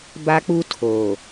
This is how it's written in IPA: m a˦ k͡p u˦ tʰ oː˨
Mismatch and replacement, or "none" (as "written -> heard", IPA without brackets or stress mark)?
m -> b